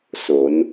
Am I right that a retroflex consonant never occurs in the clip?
yes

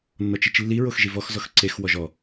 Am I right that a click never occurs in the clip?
no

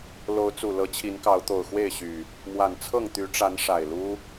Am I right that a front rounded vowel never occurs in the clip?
no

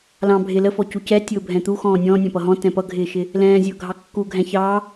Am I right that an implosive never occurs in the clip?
yes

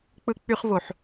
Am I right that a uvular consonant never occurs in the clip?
no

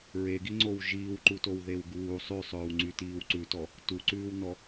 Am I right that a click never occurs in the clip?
no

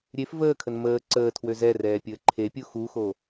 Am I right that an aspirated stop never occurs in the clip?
no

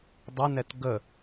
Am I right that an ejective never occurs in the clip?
yes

